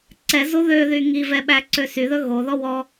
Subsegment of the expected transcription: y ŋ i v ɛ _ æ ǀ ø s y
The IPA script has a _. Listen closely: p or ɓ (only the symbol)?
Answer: ɓ